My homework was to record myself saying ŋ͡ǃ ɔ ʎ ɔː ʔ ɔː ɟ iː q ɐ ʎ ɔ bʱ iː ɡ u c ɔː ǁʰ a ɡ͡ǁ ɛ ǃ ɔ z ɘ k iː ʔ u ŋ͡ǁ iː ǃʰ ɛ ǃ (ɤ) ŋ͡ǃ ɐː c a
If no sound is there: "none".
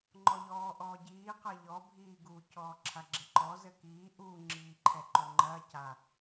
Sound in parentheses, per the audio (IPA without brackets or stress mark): o